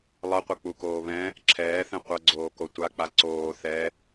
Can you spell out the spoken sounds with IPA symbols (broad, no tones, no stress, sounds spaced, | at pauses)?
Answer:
lˠ ʌ qʷ ʌ k͡p u k oː β ɛ̃ | ǁʰ ɛː θ ɛ̃ qʷ ʌ ɡ͡ǀ oː k o tʷ a k͡p a ǀ oː θ ɛ